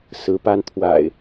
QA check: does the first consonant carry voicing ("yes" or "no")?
no